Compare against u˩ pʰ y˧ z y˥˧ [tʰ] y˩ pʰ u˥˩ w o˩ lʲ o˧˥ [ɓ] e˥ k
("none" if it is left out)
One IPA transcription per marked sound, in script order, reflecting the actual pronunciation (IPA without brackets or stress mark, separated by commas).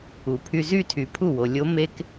tʰ, m